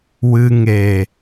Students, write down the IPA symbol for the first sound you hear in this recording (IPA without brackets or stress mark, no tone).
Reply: w